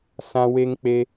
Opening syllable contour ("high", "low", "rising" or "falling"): high